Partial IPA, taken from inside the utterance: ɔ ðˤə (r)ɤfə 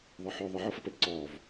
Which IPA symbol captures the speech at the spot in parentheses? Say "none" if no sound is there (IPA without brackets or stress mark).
ʕ